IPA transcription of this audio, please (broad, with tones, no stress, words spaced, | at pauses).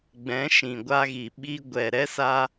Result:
ɡ͡bɛ̃˨˦ʃĩ˨ɡʷa˧ɣi˨ ɓi˦ ɡʷɛ˨ɾɛ˦ sa˦